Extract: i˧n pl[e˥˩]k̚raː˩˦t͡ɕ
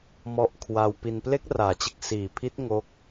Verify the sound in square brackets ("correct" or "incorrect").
incorrect